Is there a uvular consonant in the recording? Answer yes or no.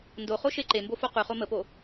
yes